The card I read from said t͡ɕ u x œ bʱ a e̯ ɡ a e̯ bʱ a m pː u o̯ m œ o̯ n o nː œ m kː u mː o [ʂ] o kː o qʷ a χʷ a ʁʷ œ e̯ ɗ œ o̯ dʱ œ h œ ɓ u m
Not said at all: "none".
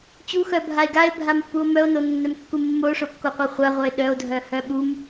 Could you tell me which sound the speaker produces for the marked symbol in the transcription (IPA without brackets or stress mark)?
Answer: ʂ